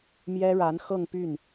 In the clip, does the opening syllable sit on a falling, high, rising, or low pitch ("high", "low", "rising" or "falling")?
high